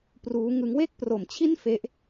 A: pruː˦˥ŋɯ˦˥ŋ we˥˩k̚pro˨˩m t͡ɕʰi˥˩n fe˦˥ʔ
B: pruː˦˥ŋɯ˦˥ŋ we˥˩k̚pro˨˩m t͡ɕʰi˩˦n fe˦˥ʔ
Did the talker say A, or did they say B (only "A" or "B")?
A